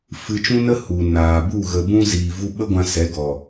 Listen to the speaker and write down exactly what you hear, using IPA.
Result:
f ɨ˧ t͡ʃ ũ˦ n ə˦ h u˨ n aː˨ b u˦˨ ɣ ə˨ b ũ˧ z iː˨ v u˧ ɓ ə˦ ɡʷ ã˧ s ɛ˨˦ ɡ ɔ˨

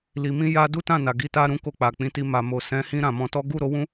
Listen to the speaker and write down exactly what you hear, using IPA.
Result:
l i˨ m ĩ˧ j a˧ d u˦ t ã˦˨ n a˨ ɡ i˧ t a˧ ɾ ũ˧ k o˧ k͡p a˨ k͡p ĩ˨˦ t i˧ m a˨ m o˨ s ɛ̃˨˦ h ĩ˧ ɾ ã˨ m ɔ̃˧ t ɔ˦ ɡ u˦˨ ɾ o˨˦ w ũ˦

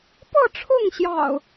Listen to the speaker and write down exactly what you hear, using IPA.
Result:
p ɤ˥˨ ʈ͡ʂʰ ʊ˥˨ ŋ ɕ j ɑ̰˨˩ ʊ̯

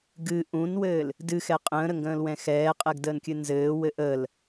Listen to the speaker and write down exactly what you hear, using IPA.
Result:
ɡ ɨ ʔ ũ n w ɘː l | d ɨ x ɛ qʼ ə̃ː ɾ ə ŋ ɡ ə̃ː l w ɛ̃ x ɛː qʼ ɛ ɡ d əː n kʲ ɨ n z ɘː w ɘ ʔ əː l

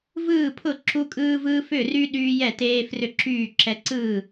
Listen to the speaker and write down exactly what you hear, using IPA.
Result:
v ɯː˥˨ pʰ ʊ˥˨ ǁ u˦ kʼ ɯː˦ v ɯː˦ f ʏ˥˨ r y˦ ɗ yː˦ j ɛ˥˨ t eː˦ f r ʏ˥˨ ǁ yː˥˨ ǁ ɛ˦ ǀ ɯ˥˨

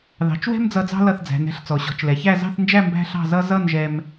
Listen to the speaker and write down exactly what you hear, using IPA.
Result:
ð ɑ̤˩˧ t͡ʃ w ɛ̤˥ m d͡z ʌ˧ d͡z ɑ̤˥ l ʌ˧˩ θ d͡z æ̤˩˧ n ɛ̤˩˧ ɬ t͡s ɔ˩˧ ɕ ɔ̤˩˧ t͡ʃ l ɛ˩˧ ç æ˥˧ z ɑ̤˥˧ θ n d͡ʒ æ˥˧ m b æ̤˥ ɬ ɑ̤˥˧ z ʌ˥ z ʌ˥˧ n ʒ ɛ˧ m

